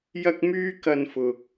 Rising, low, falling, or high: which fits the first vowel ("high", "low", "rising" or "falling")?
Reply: high